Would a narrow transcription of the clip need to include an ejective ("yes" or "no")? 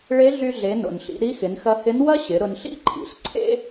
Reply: no